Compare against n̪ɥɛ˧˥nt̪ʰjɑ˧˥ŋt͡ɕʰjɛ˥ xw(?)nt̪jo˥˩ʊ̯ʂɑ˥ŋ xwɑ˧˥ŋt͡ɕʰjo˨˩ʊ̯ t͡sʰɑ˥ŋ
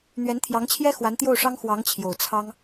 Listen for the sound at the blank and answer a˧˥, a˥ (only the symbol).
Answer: a˧˥